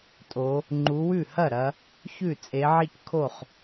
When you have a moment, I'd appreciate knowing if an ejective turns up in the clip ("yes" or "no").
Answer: yes